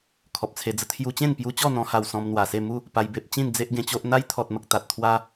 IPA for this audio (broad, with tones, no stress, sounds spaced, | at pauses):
kʰ ɔ˨ p̚ t͡sʰ e˧ d͡z ə˧ t̪ʰ j u˧ t͡ɕ ẽ˥˧ n p j u˧ t͡ɕ ɔ˥˧ n̪ ɔ̃˧ h a˧ w s ɔ̃˧ m n̪ w a˨˩ s e˥˧ m u˥˧ | p a˧ j b e˦ p̚ t͡ɕ ĩ˥˧ n d͡z e˦ ʔ ɡ ẽ˧ t͡ɕ o˦ ʔ n̪ a˦ j t̪ʰ ɔ˨ t̚ m ə˨ k̚ t̪ a˨ t̚ t̪ʰ w a˦